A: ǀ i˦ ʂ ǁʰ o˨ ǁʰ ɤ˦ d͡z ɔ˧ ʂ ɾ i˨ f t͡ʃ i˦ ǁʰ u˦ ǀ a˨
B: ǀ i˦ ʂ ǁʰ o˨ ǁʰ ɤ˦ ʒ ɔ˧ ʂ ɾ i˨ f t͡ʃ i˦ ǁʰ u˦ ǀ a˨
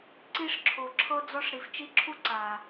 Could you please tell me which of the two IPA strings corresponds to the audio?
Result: A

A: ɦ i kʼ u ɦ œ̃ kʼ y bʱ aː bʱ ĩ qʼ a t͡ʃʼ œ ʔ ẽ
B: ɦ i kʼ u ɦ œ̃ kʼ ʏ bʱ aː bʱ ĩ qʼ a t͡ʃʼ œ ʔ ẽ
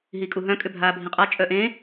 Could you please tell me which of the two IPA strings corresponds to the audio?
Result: B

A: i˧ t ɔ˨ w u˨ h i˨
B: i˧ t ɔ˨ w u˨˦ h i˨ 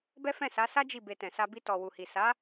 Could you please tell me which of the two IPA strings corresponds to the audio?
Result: A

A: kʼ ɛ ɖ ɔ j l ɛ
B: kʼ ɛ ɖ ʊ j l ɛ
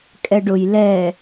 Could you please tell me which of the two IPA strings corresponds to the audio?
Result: B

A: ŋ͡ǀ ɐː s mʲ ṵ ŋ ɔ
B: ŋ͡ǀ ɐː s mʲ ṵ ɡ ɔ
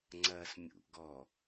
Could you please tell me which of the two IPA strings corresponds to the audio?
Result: B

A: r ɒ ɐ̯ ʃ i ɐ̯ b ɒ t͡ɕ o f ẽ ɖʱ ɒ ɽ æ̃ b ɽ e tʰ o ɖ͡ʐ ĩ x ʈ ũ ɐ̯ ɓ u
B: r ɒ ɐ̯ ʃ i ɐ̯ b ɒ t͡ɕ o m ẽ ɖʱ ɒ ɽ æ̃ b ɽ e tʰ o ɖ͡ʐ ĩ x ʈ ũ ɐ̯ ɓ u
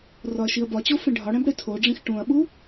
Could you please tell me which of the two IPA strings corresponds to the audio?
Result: A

